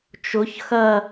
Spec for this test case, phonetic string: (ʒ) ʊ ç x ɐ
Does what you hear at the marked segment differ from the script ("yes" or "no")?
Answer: yes